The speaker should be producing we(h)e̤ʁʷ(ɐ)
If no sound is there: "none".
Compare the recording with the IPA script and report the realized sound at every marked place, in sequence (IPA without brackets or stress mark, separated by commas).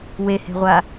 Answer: h, a